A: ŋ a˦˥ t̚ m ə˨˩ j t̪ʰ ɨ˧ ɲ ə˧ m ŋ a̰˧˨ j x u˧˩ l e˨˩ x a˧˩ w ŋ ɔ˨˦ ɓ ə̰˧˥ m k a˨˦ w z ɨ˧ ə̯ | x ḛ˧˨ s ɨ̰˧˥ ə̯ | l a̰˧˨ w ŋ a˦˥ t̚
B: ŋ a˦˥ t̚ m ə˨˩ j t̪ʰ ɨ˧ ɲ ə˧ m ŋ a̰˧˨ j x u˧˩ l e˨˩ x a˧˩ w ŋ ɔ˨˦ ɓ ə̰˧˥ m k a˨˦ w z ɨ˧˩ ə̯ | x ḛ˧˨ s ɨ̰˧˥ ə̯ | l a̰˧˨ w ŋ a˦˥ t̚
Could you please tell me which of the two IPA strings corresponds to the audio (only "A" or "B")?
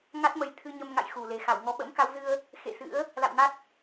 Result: A